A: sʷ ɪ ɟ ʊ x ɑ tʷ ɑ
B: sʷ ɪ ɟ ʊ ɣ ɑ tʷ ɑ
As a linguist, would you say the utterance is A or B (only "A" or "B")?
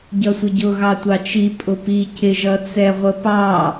B